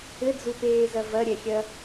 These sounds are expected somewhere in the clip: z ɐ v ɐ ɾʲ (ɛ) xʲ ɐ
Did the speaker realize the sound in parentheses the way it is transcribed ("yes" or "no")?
yes